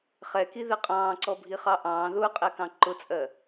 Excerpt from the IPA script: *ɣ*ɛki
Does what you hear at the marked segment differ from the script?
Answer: yes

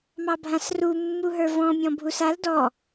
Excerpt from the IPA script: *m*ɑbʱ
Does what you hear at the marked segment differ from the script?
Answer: no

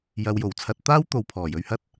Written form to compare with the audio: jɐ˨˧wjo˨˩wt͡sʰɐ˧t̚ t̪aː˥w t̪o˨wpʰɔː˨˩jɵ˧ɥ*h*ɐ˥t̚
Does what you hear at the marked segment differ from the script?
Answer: no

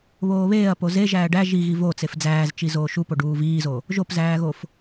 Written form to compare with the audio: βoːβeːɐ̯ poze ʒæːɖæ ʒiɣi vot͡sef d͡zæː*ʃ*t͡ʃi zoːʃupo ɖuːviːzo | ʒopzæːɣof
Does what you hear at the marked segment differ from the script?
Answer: yes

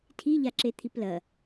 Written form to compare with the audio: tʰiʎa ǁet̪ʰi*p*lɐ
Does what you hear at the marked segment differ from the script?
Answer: no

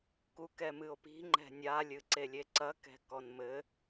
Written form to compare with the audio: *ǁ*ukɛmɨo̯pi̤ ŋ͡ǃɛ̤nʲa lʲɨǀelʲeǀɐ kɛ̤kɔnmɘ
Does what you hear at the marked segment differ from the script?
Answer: yes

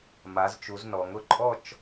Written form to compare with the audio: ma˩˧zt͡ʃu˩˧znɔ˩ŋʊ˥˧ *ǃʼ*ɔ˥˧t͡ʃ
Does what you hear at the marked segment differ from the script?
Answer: no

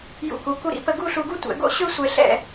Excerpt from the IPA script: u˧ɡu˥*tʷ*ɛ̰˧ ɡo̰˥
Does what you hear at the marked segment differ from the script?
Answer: no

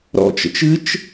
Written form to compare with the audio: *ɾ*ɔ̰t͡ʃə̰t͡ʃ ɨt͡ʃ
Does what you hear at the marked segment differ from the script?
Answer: no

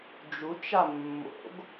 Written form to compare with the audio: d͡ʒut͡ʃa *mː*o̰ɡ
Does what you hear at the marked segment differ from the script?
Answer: no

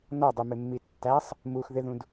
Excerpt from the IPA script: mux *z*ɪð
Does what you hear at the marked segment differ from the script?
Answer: yes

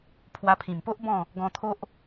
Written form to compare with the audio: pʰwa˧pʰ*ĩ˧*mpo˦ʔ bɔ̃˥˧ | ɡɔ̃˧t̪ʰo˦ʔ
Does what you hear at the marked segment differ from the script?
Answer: yes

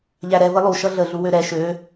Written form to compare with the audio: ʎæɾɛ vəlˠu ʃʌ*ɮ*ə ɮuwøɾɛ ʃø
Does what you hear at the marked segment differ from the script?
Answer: no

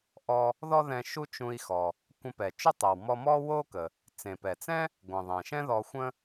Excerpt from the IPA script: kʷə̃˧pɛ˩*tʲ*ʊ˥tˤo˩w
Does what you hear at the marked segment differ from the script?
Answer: yes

